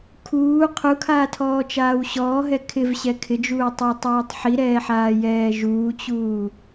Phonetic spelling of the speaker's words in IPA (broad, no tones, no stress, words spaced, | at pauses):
kʰuː qʰukʰaːtʰɔːt͡ʃaːw ɕɔːɦɛ kʰɪvɕɛ kʰɪd͡ʒuːtˤatˤɛːtˤ ħiɾɛːħaːjɛː ʒuːt͡ɕuː